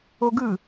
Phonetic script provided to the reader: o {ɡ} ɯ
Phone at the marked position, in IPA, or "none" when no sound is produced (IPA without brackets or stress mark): ɡ